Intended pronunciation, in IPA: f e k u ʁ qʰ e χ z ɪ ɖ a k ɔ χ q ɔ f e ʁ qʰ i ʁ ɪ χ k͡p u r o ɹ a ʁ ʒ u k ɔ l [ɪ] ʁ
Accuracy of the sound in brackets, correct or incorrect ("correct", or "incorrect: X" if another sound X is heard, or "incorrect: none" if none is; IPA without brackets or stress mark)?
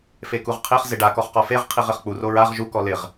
correct